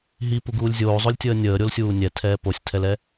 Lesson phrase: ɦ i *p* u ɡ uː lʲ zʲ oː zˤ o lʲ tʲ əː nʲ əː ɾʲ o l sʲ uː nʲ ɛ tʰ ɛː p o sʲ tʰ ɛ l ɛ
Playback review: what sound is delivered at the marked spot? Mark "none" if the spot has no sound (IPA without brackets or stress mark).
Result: p